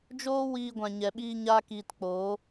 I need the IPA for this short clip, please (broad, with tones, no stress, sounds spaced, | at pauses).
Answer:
d͡ʒ oː˦ w iː˧ ɡʷ ã˨ ɲ ɛ˨ ɓ iː˧ ɲ aː˦ k iː˧ t k͡p oː˨˦